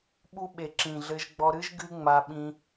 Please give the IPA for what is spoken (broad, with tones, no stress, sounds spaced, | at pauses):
ɓ u˧ ɓ e˨ ǁ ĩ˨ ɮ ɘ˧ ʒ ɡ͡b ɔ˧ ɾ ɨ˦ ʒ ɡ ɨ˦ ŋ͡m a˧ ɓ ĩ˧